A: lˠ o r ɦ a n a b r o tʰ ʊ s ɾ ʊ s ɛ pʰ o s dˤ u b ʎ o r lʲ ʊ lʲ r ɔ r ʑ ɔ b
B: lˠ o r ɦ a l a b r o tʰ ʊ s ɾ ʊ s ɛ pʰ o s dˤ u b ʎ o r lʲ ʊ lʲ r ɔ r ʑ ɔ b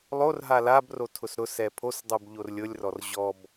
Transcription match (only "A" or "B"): B